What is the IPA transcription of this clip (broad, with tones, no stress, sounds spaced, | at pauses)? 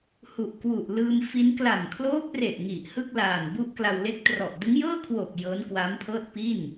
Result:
h u˨˩ ʔ k w u˨˩ ʔ l ɯː˧ m f i˦˥ n k l a˨˩ m kʰ l oː˦˥ p̚ r e˨˩ ʔ ŋ i˨˩ ʔ h ɯ˥˩ k̚ l aː˨˩ n b u˦˥ ʔ k l a˧ w l e˦˥ k̚ t r ɔ˨˩ ʔ d ɯ˦˥ ŋ j ɤː˥˩ kʰ w oː˨˩ k̚ j ɤː˦˥ n k w aː˦˥ m pʰ ɤː˥˩ t̚ p i˥˩ n